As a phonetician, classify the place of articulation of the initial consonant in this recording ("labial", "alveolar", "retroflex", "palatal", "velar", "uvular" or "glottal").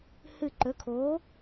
glottal